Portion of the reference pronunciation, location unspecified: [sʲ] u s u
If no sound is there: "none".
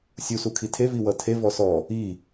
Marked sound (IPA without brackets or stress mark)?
sʲ